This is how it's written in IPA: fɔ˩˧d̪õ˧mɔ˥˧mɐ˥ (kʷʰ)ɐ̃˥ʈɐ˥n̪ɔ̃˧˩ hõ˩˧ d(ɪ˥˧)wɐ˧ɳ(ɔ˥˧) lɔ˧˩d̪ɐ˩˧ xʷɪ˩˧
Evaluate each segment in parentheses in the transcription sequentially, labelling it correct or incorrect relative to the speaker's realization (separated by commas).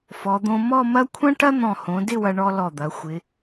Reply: correct, correct, incorrect